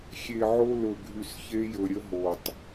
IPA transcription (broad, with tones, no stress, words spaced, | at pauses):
xʲe˨ʕo˦ lɵ˨ ɡʱy˨sçe˦jɵ˨ ɾʲə˦ɦo˨tˤ